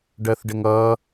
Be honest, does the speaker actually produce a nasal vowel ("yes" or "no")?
no